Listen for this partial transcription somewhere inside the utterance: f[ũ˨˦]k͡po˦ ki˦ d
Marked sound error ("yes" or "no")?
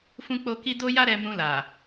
yes